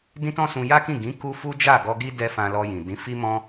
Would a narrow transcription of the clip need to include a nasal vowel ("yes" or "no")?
yes